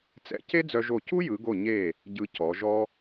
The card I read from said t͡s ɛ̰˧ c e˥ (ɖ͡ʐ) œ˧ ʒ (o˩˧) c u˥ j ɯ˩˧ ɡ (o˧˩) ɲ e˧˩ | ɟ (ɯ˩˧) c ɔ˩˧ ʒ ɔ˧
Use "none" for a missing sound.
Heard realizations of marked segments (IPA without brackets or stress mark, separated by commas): d͡z, o˧˩, o˧˩, ɯ˧